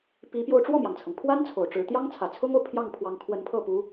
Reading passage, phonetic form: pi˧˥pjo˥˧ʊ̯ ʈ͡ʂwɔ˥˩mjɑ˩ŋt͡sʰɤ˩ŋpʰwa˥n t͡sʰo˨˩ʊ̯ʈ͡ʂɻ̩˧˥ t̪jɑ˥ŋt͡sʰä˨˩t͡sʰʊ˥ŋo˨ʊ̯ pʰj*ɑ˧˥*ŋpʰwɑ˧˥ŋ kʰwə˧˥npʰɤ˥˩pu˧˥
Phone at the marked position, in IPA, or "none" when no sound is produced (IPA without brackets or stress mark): ɑ˥˩